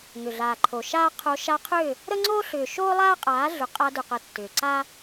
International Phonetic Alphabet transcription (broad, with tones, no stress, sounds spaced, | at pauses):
ŋ ʏ˨ ɮ aː˨ ǃʰ o˨ ʃ aː˦ qʰ o˧ ʃ a˧ qʰ ʏ˦˨ | ɾ ə˦ ŋ͡ǀ oː˦ ɬ ʏː˨ ʃ oː˦ lˠ aː˦ qʼ aː˨˦ ɮ ʏ˨ qʼ a˧ d ʏ˨ q ə˨ tː ʏː˨ ǀ a˦